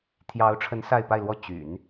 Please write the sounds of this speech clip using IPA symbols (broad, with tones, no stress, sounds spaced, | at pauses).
t̪ʰ j ɑ˧˥ ʊ̯ ʈ͡ʂʰ ə˧˥ n s a˥˧ ɪ̯ p a˥˧ ɪ̯ l w ɔ˥˩ t͡ɕ y̰˨˩˦ n